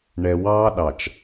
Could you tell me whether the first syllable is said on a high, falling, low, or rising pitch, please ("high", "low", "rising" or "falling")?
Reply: low